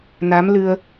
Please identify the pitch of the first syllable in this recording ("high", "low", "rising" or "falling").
rising